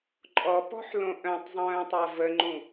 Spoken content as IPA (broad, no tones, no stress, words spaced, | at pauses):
ǃʼɔpɔ̤ħ lõʔœ̃tˤzˤœ̃ː tˤavəŋ͡ǃũ